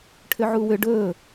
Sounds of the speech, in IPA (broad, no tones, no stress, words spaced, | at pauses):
ʈʰʏʕuwʏ ɖɵː